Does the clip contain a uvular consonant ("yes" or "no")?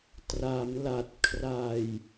no